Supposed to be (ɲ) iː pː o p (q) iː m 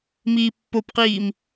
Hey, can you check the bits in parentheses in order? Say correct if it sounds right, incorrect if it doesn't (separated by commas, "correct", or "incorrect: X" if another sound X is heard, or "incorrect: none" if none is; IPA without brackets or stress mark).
incorrect: m, correct